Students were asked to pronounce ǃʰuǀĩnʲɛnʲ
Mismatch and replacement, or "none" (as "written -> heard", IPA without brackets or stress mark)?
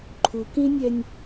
ǀ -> k